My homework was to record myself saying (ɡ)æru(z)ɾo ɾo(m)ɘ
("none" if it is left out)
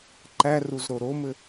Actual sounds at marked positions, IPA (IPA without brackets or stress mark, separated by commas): ǃ, z, m